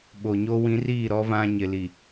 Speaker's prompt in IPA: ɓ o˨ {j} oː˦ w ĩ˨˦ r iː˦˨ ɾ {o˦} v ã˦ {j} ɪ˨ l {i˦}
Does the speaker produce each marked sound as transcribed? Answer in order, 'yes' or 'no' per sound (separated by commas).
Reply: no, no, no, no